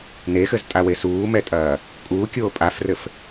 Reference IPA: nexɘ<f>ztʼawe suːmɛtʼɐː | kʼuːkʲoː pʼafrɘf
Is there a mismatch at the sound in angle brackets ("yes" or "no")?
yes